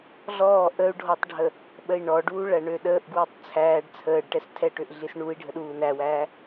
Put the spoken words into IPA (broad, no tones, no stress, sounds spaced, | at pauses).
ɮ ɔː ʔ ə u̯ ɖʱ ɔ tˤ ɖʱ ə | ɓ ə i̯ ɳ ɔ ɖ uː ɭ æ ɳ ø ɗ əː ʔ ɡ w i tˤ t͡sʰ æː ɖ t͡sʰ əː ɖ ʈ ɛ s tʰ ɛ ʈ ø ʔ ɮ i s ɳ u i̯ ɖʱ ə ɗ uː n æ w æː